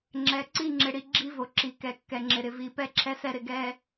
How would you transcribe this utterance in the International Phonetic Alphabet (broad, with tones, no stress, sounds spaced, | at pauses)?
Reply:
ŋ͡ǁ ɛ˨ ǀ i˦˨ ŋ͡ǁ ɪ˨ ɽ i˨ ɡ͡ǁ i˦ v o˨ ǁ i˨ k ɛ˨ kː ɛ˨ ŋ͡ǁ ɪ˨ ɾ ɪ˨ v i˨ p ɛ˦ ǁʰ ɛ˦ s ɛ˦ ɾ ɪ˨ ɡ ɛ˦